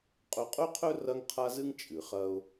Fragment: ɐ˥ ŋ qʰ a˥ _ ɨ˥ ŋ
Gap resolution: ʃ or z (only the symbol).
z